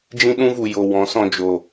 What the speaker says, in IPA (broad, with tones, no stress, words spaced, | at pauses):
d͡ʒĩ˦ɗũ˦vu˨ jo˨ wɔ̃˨˦sɔ̃˧ d͡ʒo˨